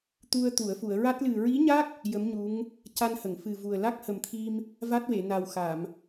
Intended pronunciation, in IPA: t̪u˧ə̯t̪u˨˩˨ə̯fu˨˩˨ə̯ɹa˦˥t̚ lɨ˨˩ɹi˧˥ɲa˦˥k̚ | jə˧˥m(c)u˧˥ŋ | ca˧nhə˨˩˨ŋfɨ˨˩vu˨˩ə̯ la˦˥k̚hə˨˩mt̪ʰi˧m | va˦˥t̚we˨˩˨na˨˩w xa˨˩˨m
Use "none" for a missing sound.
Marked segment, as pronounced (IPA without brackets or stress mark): ɲ